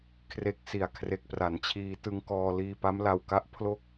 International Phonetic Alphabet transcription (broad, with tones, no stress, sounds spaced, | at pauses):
kʰ r e˨˩ k̚ s i˨˩ a̯ kʰ r e˨˩ k̚ p r a˩˦ n t͡ɕʰ iː˧ t ɯ˧ ŋ k ɔː˧ l iː˧ p a˦˥ m l a˧ w k a˦˥ ʔ pʰ l o˥˩ k̚